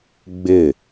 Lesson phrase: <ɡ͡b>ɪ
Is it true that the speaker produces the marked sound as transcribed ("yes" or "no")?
yes